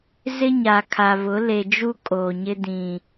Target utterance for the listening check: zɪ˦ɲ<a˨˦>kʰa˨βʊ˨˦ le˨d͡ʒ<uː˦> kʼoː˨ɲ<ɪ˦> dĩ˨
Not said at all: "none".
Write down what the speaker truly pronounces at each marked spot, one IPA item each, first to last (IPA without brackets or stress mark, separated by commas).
a˨, u˦, ɪ˦